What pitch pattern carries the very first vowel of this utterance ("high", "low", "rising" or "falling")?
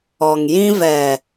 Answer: low